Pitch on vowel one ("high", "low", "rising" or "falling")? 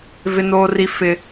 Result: high